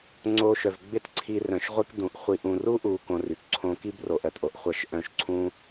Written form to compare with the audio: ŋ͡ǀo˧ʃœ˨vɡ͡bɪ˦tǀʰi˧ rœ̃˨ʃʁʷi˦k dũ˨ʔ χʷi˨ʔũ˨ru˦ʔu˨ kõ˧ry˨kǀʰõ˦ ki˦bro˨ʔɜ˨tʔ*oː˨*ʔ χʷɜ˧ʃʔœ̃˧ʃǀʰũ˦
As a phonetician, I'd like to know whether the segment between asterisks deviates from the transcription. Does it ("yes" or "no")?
yes